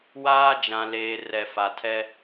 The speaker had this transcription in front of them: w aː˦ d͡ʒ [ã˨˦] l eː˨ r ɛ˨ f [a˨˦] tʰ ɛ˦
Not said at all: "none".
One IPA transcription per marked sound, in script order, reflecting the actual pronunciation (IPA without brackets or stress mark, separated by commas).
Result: ã˨, a˨